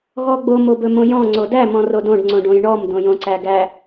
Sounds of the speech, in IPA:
ɣ ɔ ɡ͡b o m o b ɵ m õ j ɔ̃ ŋ͡ǀ o d æ m ɔ̃ r o d õ ɖ ŋ͡ǀ õ ɖ õ j ɳ ɔ m d õ j õ ǀ æ ɡ æ

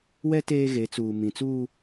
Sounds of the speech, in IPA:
w ɛ˦ t eː˦ ɣ e˨˦ t͡s uː˨ m ĩ˨ t͡s uː˦

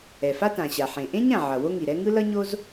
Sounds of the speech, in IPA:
ɛ˩ f a˥ t ã˩ ɕ a˩ ħ ẽ˩ ʔ ẽ˥ ɲ ã˩ ʕ ʌ˩ w o˥ ŋ i˩ ɾ ɛ˥ ŋ ɯ˥ l ʌ˥ ɲ o˥ z

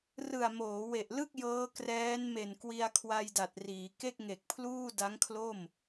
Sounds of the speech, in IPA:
r ɯ˨˩ a̯ m oː˩˦ w e˨˩ ʔ l ɯ˥˩ k̚ j ɤː˦˥ k r ɛː˦˥ n m e˨˩ n k w i˧ a̯ kʰ w a˧ j d a˨˩ t̚ r iː˩˦ k e˥˩ k̚ ŋ e˨˩ k̚ pʰ l uː˥˩ d a˦˥ ŋ kʰ l o˥˩ m

